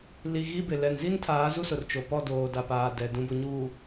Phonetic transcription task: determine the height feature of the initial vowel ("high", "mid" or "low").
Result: high